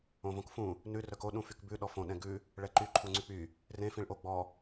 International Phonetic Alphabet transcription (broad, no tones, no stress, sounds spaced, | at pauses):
õ v õ k f ũ | n ʉ r œ k o ɗ ũ f y k b ʉ ɗ ɔ f õ ɗ ɛ̃ ɡ ʉ | ɭ ɛ ǃ y ǃʰ u ŋ͡ǀ y k͡p y | r ẽ f ĩ ɭ ʔ o ɡ͡b ɔ